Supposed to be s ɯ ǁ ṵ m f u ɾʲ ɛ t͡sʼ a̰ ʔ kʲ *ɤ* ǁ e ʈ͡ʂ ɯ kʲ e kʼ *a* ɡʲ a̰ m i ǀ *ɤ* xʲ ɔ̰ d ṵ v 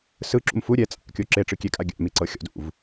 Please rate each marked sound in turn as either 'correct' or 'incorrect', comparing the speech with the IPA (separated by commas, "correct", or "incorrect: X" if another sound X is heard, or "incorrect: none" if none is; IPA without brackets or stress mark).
incorrect: o, correct, correct